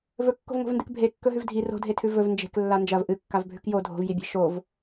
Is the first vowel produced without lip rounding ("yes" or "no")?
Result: no